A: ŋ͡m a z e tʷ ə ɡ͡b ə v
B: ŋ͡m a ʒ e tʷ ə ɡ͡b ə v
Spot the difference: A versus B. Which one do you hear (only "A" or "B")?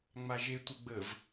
B